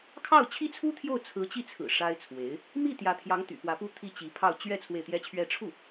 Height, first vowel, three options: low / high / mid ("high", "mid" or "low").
low